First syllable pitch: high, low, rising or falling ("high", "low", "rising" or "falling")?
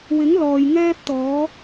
rising